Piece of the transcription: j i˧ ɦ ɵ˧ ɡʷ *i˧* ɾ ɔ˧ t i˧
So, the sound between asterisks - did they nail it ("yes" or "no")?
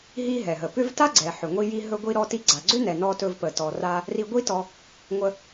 yes